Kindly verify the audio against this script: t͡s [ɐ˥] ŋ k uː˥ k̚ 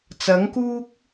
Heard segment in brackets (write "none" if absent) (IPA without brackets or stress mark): ɐ˨˥